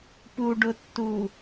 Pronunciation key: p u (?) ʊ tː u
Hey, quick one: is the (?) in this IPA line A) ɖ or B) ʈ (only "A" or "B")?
A